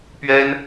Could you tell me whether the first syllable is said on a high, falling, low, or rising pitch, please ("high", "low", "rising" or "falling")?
high